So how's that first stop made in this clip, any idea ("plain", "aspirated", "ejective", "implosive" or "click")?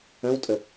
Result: ejective